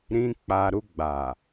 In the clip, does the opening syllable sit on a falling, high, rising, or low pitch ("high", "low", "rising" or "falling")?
high